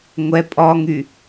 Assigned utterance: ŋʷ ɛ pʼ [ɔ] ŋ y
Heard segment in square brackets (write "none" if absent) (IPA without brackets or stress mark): ɔ